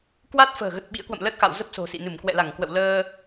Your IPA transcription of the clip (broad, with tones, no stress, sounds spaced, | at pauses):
k w a˦˥ t̚ f ə̤ː˨˩ ɣ ə˨˩ t̚ ɓ ḭ˧˥ ə̯ k w ə̰˧˨ m l ə˦˥ t̚ x a̰˧˨ w z ə˦˥ p̚ s o̤˨˩ s ḭ˧˨ n ɨ˧˩ m k w ɛ̰˧˨ l a˧˩ ŋ k w ə̰˧˨ w l əː˧